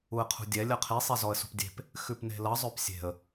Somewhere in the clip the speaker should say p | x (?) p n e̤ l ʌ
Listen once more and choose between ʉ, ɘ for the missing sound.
ʉ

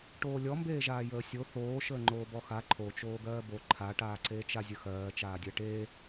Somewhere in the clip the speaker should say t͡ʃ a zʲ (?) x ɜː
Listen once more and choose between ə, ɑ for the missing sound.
ə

